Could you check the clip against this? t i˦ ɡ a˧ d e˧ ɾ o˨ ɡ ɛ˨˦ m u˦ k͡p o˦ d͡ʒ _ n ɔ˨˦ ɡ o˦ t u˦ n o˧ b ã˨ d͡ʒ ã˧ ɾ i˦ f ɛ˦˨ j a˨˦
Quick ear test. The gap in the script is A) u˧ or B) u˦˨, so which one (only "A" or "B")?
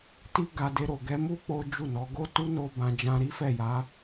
B